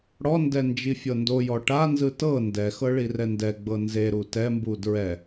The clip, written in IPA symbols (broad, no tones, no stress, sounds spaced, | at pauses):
ɽ ɔ n d ɛ n d͡ʒ i fʲ ɤ n d o j ɔ ʈ a n z ɯ t ɤ n d ɛ x ɤ ɭ i r ɛ n d ɛ ɡ͡b ɤ n z e ɾ u t ɛ m b u d ɹ ɛ